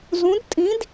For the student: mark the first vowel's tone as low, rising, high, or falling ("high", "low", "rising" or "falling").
rising